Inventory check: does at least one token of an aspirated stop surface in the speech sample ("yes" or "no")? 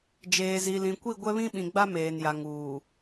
no